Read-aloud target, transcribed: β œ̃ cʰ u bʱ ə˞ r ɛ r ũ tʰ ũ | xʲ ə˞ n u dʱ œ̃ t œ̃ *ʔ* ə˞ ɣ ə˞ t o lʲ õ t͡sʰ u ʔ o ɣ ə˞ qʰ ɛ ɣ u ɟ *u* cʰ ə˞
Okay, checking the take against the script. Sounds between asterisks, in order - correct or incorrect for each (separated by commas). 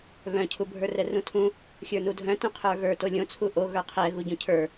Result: incorrect, incorrect